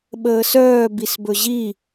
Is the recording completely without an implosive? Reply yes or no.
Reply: no